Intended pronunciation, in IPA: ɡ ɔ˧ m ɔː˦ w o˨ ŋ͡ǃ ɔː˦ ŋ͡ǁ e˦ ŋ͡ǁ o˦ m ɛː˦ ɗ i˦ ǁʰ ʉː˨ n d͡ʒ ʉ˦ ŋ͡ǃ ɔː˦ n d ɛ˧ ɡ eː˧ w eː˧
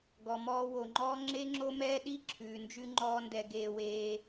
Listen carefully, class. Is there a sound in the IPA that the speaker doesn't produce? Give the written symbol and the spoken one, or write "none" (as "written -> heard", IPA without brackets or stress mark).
none